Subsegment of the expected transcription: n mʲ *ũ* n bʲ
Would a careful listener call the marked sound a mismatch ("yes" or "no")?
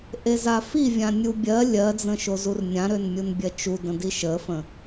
yes